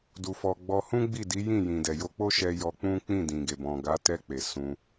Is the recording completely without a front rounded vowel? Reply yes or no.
yes